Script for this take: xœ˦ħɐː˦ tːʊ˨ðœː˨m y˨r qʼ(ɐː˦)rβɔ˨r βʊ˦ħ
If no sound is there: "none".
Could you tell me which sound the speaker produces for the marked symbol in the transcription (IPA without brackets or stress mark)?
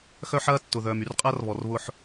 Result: ɐː˦